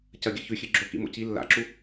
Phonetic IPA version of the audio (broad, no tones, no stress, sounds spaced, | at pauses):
c ɐ ɡʲ ɐ ç ʉ xʲ ɨ ɡ͡ǁ o k ḭ m o̰ c i lː a̰ ǁ u